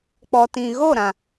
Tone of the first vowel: low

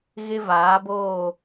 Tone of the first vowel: high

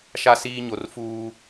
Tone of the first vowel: high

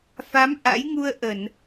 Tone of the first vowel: rising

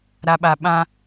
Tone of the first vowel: low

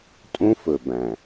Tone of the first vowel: high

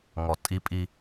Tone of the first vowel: low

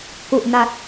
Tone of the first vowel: low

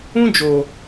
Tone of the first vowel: high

